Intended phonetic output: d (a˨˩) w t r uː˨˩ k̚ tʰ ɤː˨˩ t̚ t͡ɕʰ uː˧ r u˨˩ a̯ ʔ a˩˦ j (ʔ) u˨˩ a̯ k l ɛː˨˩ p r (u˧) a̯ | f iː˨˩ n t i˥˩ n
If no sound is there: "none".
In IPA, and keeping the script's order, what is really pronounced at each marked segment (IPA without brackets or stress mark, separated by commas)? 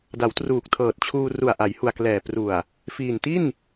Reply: a˩˦, h, u˨˩